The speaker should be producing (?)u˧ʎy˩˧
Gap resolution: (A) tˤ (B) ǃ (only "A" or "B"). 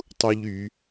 A